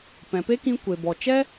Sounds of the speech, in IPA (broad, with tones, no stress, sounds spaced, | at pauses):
p ɛ̃˨ p e˦ k ĩ˧ kʷ e˨ b ɔ˨ t͡ʃ ɛ˦